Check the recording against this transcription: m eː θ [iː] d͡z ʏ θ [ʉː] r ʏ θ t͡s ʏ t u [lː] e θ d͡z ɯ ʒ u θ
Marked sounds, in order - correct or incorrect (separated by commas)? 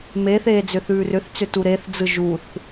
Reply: incorrect, correct, incorrect